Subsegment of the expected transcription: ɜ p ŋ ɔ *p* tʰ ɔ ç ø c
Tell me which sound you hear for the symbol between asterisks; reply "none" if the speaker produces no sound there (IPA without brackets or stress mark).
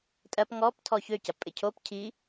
p